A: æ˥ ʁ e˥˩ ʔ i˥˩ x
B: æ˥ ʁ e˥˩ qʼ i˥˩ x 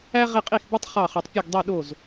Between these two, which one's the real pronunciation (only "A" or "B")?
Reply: B